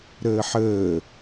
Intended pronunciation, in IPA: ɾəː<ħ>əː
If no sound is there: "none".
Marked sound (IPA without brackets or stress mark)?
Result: ħ